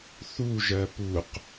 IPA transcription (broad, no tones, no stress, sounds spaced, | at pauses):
θ u ʒ ɜ p u q